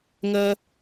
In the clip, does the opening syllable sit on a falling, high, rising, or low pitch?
high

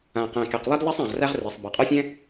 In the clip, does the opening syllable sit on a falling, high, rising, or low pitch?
low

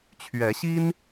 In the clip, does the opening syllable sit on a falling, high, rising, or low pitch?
rising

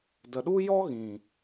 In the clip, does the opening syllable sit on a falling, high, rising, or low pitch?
low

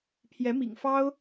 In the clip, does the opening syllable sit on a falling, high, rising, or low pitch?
rising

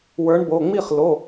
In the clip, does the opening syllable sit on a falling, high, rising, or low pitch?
rising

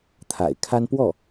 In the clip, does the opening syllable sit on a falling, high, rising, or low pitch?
low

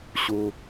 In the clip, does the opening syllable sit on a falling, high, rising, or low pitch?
high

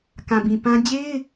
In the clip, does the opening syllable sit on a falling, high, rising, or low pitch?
low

